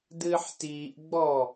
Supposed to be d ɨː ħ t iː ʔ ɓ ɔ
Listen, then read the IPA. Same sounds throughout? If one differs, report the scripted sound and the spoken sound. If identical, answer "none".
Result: ɓ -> ɡ͡b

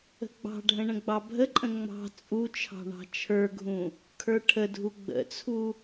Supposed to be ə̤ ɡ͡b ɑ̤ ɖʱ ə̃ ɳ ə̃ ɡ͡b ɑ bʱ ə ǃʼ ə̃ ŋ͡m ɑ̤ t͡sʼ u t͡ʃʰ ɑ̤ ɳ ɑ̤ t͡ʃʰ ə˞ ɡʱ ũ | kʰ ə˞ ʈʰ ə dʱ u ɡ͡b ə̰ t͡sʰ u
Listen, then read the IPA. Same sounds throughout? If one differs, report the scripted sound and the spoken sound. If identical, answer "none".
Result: none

